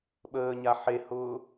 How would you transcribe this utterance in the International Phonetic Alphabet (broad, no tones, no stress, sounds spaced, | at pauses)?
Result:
ɓ əː ɲ a ħ e h ʊː